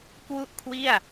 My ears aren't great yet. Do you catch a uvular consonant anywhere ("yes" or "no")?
no